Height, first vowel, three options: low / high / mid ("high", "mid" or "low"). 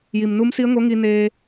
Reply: high